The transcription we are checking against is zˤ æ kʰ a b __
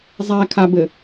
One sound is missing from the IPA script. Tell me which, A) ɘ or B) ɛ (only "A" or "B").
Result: A